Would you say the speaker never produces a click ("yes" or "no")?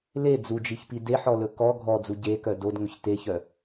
yes